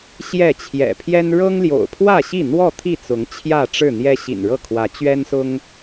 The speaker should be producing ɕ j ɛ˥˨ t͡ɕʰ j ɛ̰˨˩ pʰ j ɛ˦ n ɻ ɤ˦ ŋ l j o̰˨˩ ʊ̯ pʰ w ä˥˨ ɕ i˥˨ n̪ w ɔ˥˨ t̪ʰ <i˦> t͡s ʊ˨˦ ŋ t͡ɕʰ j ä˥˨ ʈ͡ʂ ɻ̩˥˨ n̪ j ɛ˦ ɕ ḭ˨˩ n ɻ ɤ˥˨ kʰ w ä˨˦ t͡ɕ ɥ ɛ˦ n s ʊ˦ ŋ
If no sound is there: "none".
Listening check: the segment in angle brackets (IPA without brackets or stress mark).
i˥˨